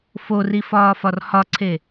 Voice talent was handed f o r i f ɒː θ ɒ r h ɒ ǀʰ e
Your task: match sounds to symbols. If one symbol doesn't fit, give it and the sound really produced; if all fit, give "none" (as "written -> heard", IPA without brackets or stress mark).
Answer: θ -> f